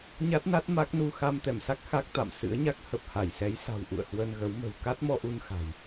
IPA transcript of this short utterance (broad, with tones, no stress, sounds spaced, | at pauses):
ɲ a˦˥ t̚ n a˦˥ t̚ m a˦˥ k̚ n u˧ x a˧ m t̪ ɛ˧˩ m s a˦˥ k̚ x a˦˥ k̚ t̪ a̰˧˨ m s ɨ̰˧˥ ə̯ ɲ a˦˥ k̚ h ə˨˩ p̚ h a˧˩ j s ɛ˨˦ j s a̤˨˩ w ʔ ṵ˧˨ ə̯ h w ə˧ n ɣ ə˨˦ w m ə̤˨˩ w k a˦˥ t̚ m ɔ˧ ʔ u˧ n x a̤˨˩ j